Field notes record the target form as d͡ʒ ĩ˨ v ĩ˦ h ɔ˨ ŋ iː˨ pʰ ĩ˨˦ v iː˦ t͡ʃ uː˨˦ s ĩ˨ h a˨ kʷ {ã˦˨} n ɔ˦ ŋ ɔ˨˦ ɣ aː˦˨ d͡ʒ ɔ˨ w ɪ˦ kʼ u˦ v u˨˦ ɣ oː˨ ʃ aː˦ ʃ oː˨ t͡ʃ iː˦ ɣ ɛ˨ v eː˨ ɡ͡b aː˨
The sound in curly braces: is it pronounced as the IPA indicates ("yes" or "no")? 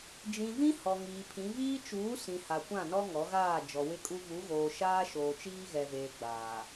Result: yes